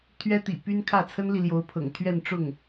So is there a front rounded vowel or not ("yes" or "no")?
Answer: yes